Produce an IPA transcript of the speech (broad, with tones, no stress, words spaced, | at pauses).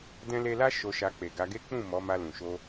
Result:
dɛ̃˦le˦ la˦ ʃo˧ʃa˧ k͡pe˨ ɡa˧ɡe˦ k͡pũ˦˨ mɔ˨˦ ma˧lũ˨ʃo˧